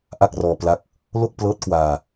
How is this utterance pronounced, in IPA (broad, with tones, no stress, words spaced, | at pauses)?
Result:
ʔa˥˩k̚rɔː˧pla˦˥k̚ | lo˥˩k̚plɤː˦˥t̚kwaː˧